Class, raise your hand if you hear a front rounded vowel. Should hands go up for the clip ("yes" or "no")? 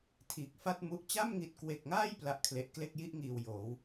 no